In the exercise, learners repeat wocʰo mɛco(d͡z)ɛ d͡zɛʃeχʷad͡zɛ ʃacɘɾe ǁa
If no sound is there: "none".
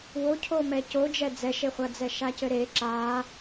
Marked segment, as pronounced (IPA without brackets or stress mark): d͡ʒ